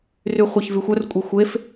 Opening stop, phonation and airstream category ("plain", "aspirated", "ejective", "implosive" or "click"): ejective